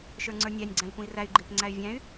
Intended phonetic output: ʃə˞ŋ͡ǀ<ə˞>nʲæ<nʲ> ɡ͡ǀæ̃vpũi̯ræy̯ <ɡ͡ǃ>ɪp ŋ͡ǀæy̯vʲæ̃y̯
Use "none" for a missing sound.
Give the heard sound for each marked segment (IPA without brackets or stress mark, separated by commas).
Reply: ə˞, nʲ, ɡ͡ǃ